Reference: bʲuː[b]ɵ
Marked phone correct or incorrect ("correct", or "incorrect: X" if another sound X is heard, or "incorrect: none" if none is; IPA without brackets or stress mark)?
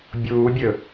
incorrect: bʲ